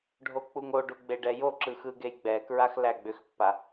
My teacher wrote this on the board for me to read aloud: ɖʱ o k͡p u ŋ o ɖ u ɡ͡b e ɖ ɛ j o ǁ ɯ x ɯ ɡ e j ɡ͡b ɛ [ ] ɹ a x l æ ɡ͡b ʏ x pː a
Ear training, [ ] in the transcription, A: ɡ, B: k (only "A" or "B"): B